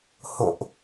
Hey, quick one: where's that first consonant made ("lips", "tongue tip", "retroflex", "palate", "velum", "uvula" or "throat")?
throat